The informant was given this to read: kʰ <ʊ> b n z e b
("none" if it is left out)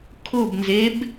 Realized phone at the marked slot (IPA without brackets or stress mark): ʊ